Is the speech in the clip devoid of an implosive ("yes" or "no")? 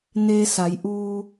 yes